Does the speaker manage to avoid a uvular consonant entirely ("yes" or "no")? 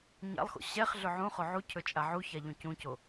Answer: no